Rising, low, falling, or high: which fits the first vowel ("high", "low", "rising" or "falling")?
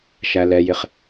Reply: low